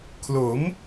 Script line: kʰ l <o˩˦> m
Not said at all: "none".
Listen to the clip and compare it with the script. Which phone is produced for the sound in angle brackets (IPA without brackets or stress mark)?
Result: o˩˦